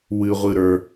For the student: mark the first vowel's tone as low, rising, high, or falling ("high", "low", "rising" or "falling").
low